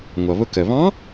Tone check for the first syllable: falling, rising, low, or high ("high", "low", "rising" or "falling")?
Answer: low